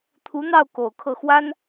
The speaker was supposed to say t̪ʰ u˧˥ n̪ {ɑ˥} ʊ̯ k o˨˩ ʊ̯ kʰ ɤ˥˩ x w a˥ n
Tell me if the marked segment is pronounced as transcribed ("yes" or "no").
no